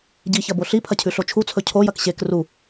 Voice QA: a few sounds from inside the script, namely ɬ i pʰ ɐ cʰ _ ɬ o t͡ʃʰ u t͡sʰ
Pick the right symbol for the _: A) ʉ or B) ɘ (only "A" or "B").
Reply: A